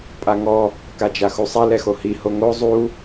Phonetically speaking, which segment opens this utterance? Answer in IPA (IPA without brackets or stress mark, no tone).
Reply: pʼ